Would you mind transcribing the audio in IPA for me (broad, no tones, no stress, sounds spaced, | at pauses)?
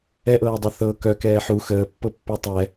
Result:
ɛ ʔ ɤː dˤ u θ ɤ k œ k ɛː ħ u x əː pː ɤ pː œ tˤ ɛ